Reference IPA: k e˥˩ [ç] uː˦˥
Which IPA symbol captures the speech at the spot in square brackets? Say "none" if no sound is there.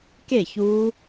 ç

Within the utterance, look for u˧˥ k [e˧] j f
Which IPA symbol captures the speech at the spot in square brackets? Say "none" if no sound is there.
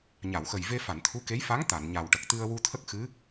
e˧˥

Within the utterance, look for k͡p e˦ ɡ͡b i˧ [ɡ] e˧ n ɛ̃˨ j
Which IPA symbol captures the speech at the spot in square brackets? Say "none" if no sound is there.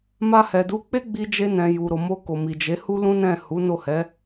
d͡ʒ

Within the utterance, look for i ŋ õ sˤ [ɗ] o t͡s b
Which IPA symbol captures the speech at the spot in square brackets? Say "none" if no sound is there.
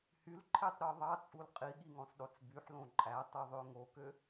ɗ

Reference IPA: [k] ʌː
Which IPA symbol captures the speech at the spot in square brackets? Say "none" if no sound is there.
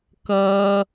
k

